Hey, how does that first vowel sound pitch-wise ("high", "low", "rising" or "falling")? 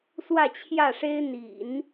falling